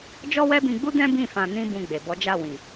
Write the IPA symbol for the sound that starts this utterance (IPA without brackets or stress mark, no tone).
d͡ʒ